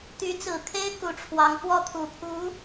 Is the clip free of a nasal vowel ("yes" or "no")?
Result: yes